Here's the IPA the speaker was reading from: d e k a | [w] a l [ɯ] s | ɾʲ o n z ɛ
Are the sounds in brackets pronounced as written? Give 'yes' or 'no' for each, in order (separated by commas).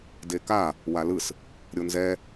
yes, yes